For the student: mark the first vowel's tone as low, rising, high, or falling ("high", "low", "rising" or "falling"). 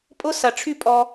high